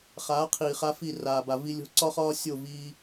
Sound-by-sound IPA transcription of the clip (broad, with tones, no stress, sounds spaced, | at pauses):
χ aː˨˦ qʰ iː˨ χ a˧ f i˦˨ r aː˨ b a˨ v i˧ lʲ o̤˧ ǀ ɒ˦ χ ɒː˦ sʲ o˦˨ v iː˧